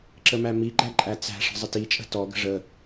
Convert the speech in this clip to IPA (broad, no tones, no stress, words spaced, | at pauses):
ǁəmæmiɡ͡ǃæ ǃʼæt͡sæ̤ʂə̤ zˤətit͡ʃʼə̤ tɔɡə̤ ʐə